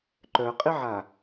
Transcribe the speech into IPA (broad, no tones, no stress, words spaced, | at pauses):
ǃœqʼiʕa